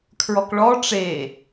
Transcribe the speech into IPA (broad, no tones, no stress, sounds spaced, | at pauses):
kʰ ɹ ɔ k ɭ ɔ ʈ͡ʂ e